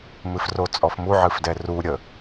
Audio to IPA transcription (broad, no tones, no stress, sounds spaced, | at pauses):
m ɨ f r o t͡sʼ ɔ f m u ʕ ɨ f d ɛ r u ɾʲ ə